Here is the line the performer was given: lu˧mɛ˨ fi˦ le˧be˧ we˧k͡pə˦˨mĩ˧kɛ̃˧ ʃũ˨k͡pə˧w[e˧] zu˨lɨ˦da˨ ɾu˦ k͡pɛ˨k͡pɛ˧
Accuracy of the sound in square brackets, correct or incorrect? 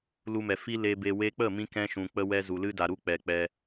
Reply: incorrect